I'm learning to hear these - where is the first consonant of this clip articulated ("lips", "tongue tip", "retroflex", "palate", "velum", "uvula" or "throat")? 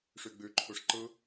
retroflex